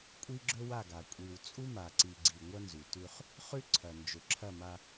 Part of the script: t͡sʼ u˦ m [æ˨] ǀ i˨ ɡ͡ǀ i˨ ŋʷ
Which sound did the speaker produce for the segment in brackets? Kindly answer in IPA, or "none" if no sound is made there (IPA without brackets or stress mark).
a˨